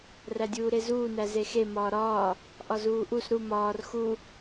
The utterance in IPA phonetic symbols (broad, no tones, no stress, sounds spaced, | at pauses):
r æ dʲ uː ɾ e z uː n æ z e x e m ɒː ɾ ɒː | ʔ ɒ z uː ʔ u s ɾ u m ɒː r x u